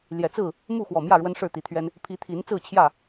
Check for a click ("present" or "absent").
absent